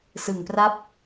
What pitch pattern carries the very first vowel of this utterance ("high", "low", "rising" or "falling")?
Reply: low